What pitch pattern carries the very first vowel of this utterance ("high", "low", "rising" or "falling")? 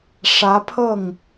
rising